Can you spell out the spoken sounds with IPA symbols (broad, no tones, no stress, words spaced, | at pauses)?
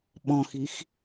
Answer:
ɓɔ̃xix